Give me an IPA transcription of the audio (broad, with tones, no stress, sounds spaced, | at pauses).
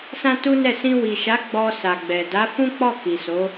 s ã˦ t u˦ n ɛ˦˨ s ĩ˧ w i˨ ʃ a˨˦ ɡ͡b ɔ˧ s a˨ ɡ͡b ɛ˨ d a˨˦ f ũ˦ k͡p ɔ˦˨ k i˨ s o˨˦